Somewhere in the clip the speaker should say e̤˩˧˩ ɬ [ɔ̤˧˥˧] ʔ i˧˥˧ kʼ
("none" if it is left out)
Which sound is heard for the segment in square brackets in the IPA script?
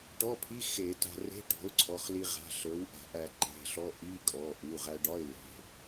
ɔ˧˥˧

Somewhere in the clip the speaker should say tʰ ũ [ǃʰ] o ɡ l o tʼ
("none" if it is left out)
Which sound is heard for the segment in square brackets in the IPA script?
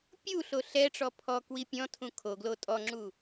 kʰ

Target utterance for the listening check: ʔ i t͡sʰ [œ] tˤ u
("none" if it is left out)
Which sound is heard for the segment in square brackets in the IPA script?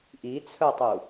œ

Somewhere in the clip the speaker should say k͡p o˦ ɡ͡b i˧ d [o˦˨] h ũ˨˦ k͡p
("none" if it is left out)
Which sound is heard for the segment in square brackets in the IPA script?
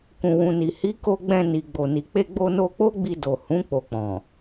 o˨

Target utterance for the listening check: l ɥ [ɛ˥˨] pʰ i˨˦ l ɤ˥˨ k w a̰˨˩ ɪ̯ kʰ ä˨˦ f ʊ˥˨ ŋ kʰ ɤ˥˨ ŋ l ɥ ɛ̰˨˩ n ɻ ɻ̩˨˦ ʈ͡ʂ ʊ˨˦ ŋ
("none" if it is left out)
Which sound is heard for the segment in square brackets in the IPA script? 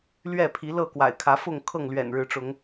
ɛ˥˨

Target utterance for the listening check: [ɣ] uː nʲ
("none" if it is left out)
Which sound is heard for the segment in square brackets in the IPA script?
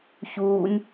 ç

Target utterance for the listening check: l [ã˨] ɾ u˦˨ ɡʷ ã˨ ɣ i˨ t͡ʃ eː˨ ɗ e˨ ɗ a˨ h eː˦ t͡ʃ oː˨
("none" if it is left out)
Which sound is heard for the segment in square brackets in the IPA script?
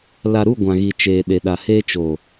a˨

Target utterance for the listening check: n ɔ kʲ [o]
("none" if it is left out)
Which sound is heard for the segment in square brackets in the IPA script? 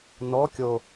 o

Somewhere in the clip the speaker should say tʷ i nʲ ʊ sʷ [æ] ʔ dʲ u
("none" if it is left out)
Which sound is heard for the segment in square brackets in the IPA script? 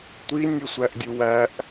æ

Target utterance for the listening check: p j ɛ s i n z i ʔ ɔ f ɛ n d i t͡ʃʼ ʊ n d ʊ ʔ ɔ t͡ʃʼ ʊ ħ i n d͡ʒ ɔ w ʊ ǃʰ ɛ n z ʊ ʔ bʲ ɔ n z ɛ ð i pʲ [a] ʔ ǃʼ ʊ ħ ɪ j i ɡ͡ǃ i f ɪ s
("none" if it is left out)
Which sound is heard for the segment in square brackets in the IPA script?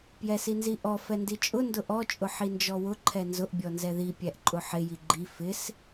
æ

